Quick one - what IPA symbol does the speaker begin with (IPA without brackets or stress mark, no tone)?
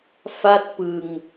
f